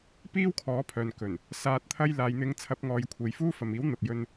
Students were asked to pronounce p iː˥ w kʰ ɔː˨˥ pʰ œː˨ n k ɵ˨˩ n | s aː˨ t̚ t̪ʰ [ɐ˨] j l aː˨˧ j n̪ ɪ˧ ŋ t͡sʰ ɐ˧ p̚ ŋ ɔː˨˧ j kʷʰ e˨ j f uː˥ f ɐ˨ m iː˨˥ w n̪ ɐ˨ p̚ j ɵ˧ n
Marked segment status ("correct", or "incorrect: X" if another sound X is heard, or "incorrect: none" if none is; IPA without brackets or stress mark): incorrect: ɐ˧